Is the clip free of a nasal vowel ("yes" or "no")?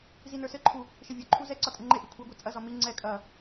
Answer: yes